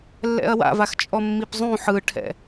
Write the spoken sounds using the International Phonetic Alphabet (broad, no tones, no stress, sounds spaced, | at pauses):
lː ɛ̰ ɐ̯ w a̰ v a x t͡ʃʼ ɔ mː i p zˤ ũ ħ ɯ ʈʰ ɛ̰